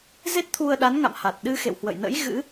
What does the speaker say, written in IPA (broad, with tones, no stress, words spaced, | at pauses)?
ze˦˥t̚t̪ʰu˧ə̯ɗa˨˦nŋa̰˧˨m ha˨˩t̚ɗɨ˧ xḛ˧˨whwə̰˧˨jnə̰˧˥j ɣɨ̰˧˥